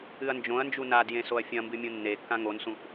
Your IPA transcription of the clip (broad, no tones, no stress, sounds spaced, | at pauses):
ɨ ɐ̯ n d͡ʒ õ ɐ̯ n d͡ʒ u n a d j ẽ s o ɐ̯ fʲ ɐ̃ m b ɨ mʲ ũ nː e kː ã ŋ o n s ũ ʔ